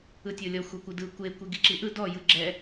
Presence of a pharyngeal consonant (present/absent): absent